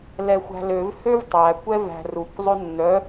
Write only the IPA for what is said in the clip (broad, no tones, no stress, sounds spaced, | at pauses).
l ɛ xʷ æ̤ l ø v h ø v tˤ æ kʷ ɛ v æ̤ r u kʷ zˤ ɵ nː œ